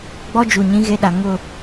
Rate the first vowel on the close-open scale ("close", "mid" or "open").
mid